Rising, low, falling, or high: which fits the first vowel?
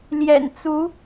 low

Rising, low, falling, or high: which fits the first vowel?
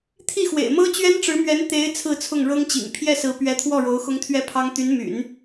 falling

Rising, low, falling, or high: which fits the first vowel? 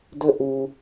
high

